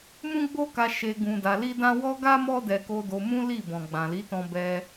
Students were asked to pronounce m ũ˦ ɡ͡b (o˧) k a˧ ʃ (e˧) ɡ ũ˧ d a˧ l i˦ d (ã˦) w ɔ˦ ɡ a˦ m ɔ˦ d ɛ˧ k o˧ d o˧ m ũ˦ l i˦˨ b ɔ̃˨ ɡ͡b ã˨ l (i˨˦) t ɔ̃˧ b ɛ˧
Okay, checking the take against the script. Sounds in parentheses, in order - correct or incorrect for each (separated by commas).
incorrect, correct, correct, correct